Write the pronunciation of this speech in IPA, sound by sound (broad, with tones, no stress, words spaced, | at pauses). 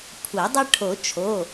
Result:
kʷʰɐ˨˩˦dˤɐ˦ ʈʰo˨˩˦ t͡ʃʰo˩˧˩